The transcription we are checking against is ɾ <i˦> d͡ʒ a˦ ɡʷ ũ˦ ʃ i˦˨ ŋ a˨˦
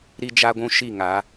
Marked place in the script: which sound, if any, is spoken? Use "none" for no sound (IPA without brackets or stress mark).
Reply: i˦